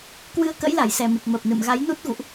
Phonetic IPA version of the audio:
k w ɨ˧ ə̯ k ə̰˧˥ j l a˧˩ j s ɛ˨˩ m ɨ˨˩ k̚ m ə˨˩ p̚ n ɨ̰˧˨ m ɣ a˨˦ j n u˦˥ t̚ ɣ ṵ˧˨ ʔ

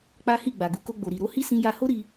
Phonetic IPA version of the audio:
k͡p a˦ h i˦˨ ɡ͡b a˨ ɡ u˨ k o˧ ɡ͡b o˨ ɾ i˨ ɾ o˨˦ h i˦ s ĩ˧ j a˧ h o˦ ɾ i˧

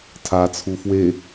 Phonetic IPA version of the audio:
tʰ a t͡sʰ u f w e

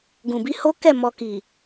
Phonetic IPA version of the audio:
ɡ ũ˨ b i˨˦ h o˦ k ɛ˦˨ m ɔ˨ k i˨

